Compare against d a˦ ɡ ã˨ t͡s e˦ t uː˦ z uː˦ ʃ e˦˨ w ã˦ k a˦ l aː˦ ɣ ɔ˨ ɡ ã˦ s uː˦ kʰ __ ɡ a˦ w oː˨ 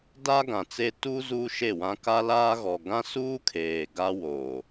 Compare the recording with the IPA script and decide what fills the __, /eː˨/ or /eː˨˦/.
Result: eː˨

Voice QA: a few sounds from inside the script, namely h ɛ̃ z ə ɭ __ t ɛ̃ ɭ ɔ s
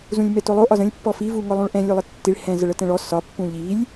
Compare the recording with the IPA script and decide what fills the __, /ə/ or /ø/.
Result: ə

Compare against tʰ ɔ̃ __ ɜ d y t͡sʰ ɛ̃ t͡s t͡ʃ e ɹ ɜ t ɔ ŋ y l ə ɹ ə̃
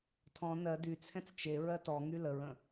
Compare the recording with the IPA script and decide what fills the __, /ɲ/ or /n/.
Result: n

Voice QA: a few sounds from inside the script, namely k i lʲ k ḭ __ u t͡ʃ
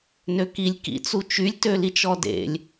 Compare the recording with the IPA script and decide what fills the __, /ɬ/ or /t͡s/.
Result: t͡s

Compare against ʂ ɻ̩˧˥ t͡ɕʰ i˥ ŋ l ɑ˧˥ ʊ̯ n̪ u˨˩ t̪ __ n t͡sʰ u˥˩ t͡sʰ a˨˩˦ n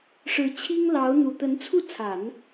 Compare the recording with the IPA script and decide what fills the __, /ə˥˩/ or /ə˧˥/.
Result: ə˧˥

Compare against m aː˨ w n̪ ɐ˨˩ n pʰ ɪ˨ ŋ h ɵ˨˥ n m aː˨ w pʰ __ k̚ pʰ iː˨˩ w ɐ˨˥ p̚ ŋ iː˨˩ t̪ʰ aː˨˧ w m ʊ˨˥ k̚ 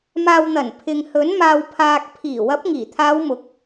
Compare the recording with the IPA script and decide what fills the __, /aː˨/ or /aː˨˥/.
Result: aː˨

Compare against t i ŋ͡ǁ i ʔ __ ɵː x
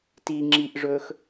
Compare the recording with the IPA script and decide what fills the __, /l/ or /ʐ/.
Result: ʐ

